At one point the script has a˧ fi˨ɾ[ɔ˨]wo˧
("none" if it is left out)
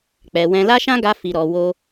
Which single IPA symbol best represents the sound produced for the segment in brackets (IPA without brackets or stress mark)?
ɔ˨